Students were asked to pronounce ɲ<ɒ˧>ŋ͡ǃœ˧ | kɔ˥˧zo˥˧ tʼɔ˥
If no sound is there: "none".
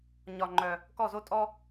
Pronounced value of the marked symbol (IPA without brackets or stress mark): ɒ˧